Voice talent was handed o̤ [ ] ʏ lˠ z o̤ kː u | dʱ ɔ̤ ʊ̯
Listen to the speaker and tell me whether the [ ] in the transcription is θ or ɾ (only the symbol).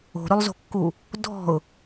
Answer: ɾ